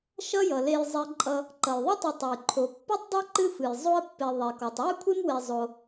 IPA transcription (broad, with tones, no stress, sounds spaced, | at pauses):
ʃ ʌ˦ j ʌ˩ l e˨ j zˤ e˨ ǃʼ ʌ˨ | ǃ ʌ˩ j ðˤ e˥ tˤ ɨ˨ tˤ o˩ j ǃʰ o˩ pː ɨ˥ tˤ dˤ e˥ ǃ ɨ˦ f ɨ˩ j zˤ o˦ ə̯ pː e˨ ðˤ e˩ k ɔ˩ tˤ w ɨ˥ kʷʰ e˥ m w e˨ zˤ o˨